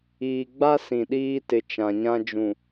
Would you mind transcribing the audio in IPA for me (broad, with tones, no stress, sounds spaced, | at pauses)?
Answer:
iː˨ ɡ͡b a˦ s ĩ˨ ɗ iː˦ t ɪ˨ t͡ʃ ã˨ ɲ ã˦ d͡ʒ ũ˨